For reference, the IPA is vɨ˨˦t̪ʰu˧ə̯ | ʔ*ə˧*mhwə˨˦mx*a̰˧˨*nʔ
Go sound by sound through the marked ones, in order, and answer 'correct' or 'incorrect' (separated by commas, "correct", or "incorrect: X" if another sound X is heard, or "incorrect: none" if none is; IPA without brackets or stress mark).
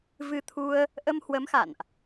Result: correct, correct